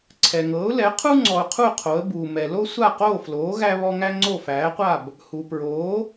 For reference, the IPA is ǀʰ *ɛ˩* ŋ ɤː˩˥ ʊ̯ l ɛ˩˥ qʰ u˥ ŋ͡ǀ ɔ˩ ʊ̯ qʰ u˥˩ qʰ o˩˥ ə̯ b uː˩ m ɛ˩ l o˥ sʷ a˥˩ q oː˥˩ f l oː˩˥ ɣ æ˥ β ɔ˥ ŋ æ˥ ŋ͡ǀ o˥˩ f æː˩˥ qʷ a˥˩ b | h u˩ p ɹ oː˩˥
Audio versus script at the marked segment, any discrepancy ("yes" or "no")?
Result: no